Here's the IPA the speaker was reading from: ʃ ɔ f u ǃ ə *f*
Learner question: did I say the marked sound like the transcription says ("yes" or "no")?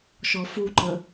no